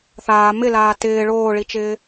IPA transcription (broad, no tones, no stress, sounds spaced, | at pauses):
θ aː m ɪ l aː t ɪː ɭ oː ɭ i t͡ʃ ɪː